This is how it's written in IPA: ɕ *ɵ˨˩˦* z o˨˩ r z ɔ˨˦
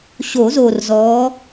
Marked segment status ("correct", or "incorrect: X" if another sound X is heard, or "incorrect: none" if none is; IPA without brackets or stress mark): incorrect: o˨˩˦